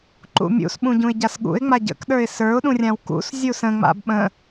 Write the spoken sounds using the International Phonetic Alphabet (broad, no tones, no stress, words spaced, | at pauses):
ǃṵmʲṵsɓũ ɟũɪ̯ɟasɠṵɪ̯ŋ͡ma ɟə̰kɗə˞ɪ̯ sə˞ʊ̯ɗũ rʲãwkṵszʲu sə̃ŋ͡ma̰b ɓə̃